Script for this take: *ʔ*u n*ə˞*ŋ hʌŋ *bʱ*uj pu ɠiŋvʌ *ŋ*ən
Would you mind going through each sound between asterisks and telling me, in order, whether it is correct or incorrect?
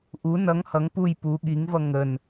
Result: correct, incorrect: ʌ, incorrect: p, correct

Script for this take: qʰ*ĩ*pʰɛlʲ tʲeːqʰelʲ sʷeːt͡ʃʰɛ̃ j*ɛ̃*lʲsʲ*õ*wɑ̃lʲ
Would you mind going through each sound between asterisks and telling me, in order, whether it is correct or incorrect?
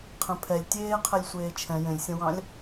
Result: incorrect: ẽ, incorrect: ẽ, incorrect: ɔ̃

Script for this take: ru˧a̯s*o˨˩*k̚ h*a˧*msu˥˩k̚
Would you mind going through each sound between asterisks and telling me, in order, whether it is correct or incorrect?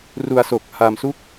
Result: correct, correct

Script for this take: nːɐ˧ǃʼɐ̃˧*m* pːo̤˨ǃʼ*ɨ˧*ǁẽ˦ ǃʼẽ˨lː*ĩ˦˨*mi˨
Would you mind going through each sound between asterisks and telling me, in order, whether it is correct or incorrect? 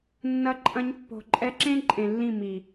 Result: incorrect: ɲ, incorrect: ɛ˧, correct

